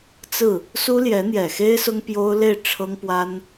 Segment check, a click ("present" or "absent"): absent